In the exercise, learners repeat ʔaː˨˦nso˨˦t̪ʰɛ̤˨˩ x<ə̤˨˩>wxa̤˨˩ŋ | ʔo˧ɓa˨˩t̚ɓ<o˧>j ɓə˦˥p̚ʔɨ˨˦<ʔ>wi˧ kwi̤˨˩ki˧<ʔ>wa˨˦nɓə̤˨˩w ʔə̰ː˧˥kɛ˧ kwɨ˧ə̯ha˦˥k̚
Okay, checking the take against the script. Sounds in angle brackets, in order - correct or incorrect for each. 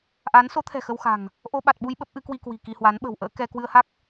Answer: incorrect: ə˧, incorrect: u˧, incorrect: k, incorrect: h

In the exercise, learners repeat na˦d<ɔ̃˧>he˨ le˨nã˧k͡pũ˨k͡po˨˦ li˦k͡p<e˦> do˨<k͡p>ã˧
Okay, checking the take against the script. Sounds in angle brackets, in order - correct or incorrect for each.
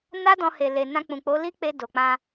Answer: correct, incorrect: e˧, correct

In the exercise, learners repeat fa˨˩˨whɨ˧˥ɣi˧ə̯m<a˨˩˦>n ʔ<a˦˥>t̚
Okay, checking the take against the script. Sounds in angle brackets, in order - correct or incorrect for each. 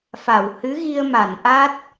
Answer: incorrect: a˨˩˨, correct

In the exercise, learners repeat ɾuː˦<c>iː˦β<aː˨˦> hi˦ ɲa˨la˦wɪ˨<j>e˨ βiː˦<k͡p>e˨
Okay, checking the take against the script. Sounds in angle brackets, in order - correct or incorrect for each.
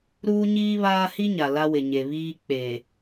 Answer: incorrect: ɲ, incorrect: aː˦, incorrect: ɲ, correct

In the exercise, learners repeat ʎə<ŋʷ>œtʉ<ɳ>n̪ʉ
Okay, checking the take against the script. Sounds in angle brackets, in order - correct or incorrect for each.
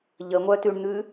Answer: correct, correct

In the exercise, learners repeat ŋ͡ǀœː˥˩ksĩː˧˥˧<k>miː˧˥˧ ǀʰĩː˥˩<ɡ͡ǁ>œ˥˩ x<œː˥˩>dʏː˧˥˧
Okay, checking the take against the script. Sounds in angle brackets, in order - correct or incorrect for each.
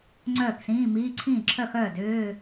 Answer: incorrect: none, incorrect: ǁʰ, correct

